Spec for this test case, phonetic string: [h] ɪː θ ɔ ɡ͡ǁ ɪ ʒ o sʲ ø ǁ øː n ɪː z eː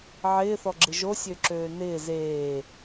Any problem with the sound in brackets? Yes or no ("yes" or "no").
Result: yes